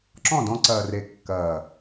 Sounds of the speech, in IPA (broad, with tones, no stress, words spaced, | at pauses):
ǁɔ̃˦˨dɔ̃˧ ǀɐː˨re˨ kːɐː˨